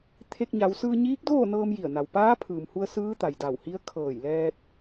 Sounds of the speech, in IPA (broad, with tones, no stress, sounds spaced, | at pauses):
t̪ʰ e˧ k̚ ɲ a˩˧ w s ɯː˧ ɲ iː˧˥ k̚ d oː˥˨ n ɤː˧ m j i˧˩ ə̯ n a˩ w p aː˧˥ pʰ ɯː˩ m h u˧ ə̯ s ɯː˧˥ t̪ a˩ j d a˧˩ w h i˧˥ ə̯ kʰ ɤː˧˩ j l ɛː˧ t̚